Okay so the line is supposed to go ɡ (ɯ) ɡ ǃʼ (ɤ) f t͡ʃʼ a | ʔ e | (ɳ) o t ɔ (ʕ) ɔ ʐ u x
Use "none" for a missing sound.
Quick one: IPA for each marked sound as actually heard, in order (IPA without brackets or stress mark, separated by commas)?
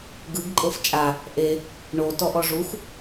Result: ɯ, ɤ, ɳ, ʔ